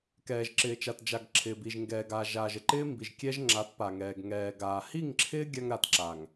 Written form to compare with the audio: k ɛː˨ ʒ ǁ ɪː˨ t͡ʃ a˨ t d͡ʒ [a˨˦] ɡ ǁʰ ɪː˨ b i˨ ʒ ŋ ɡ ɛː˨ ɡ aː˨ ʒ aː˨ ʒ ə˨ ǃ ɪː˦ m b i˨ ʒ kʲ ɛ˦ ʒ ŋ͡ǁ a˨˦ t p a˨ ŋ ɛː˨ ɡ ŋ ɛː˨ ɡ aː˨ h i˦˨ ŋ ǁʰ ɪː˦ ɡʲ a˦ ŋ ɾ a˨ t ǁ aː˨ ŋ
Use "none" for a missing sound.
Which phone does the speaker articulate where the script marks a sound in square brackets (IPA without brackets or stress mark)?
a˨